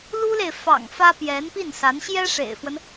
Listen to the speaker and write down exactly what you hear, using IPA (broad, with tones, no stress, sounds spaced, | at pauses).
l u˥ l e˨ ɪ̯ f ɑ̰˨˩ ŋ f ä˥ p j ɛ˧˥ n p i˥˩ n s a˧˥ n ɕ j ɛ˥ ʂ ḛ˨˩ ɪ̯ f w ə˦ n